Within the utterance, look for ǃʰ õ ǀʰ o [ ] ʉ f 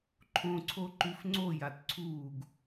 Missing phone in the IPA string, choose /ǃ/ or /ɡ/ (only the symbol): ǃ